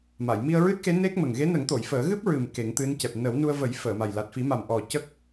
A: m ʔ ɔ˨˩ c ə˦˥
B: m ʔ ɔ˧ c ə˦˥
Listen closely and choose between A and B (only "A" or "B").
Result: A